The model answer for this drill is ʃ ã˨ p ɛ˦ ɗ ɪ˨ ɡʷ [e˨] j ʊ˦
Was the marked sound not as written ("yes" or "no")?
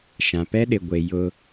no